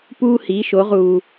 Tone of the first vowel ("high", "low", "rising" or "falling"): high